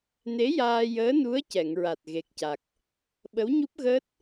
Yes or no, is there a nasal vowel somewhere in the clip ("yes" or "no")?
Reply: no